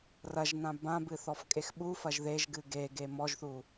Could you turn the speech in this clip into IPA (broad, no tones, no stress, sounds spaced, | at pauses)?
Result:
r ɐ ʒ n ã b ã b ɨ θ ɔ f kʼ e x ɓ u f ɐ ʒ ð e ʒ ɡ ɨ ɡ e ɡ e m ɔ ʒ θ u